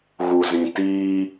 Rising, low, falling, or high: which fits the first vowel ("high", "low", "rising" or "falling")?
low